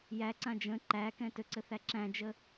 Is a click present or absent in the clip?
present